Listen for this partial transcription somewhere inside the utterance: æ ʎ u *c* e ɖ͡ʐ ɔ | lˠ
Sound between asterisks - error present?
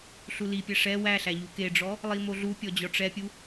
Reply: yes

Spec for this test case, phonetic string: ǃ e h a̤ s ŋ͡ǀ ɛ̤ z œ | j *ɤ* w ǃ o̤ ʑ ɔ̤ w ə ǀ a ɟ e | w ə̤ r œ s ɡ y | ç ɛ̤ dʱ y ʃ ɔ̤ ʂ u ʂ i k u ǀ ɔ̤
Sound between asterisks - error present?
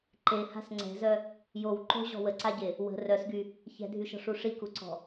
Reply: yes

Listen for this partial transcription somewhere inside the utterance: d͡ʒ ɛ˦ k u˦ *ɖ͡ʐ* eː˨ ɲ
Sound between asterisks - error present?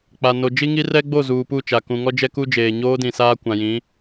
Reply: yes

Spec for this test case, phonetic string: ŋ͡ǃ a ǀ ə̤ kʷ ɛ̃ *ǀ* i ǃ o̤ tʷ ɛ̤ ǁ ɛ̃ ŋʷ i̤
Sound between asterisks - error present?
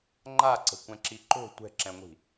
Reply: yes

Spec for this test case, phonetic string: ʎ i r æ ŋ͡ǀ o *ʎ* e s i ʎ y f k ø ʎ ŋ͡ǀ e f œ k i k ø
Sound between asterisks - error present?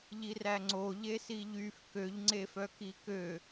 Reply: no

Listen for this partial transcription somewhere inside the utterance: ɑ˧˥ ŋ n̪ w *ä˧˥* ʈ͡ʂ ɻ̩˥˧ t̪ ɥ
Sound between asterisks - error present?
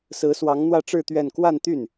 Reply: yes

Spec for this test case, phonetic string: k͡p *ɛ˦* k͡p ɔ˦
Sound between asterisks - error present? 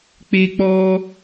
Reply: yes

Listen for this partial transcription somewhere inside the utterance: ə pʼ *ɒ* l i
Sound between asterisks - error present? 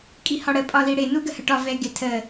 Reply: no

